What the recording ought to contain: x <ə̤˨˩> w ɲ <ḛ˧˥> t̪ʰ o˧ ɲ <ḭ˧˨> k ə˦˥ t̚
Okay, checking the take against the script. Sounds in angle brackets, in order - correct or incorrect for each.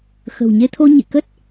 correct, incorrect: e˧, correct

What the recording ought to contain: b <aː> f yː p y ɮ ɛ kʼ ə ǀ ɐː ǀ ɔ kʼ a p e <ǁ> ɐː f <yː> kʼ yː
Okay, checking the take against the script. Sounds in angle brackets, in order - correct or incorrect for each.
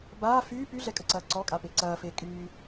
correct, incorrect: ǀ, incorrect: eː

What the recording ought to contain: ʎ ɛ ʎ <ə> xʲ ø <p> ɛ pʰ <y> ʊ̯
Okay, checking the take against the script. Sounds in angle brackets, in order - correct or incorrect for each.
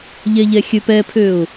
incorrect: ɛ, correct, incorrect: ø

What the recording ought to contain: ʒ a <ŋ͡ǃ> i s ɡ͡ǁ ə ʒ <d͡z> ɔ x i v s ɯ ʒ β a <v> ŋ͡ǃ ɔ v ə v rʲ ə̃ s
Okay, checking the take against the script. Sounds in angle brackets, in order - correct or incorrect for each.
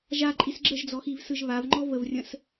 incorrect: ǃʼ, correct, correct

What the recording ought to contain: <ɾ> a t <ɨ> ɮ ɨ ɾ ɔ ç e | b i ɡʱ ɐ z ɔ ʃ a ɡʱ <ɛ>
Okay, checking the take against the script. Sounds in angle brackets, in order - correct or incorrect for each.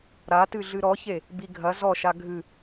correct, correct, incorrect: ɨ

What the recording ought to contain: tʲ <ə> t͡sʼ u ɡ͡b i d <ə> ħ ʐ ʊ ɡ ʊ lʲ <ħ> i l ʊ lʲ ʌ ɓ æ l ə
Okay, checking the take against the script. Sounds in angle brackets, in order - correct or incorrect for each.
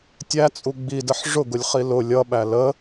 incorrect: æ, correct, incorrect: χ

